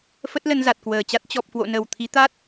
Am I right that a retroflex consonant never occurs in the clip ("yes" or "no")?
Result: yes